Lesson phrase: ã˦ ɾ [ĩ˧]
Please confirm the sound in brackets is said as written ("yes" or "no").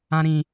yes